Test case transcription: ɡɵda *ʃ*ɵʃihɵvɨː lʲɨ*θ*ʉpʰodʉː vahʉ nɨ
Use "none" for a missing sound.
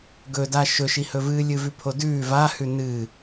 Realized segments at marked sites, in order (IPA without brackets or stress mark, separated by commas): ʃ, v